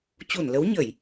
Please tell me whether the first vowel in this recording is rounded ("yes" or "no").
yes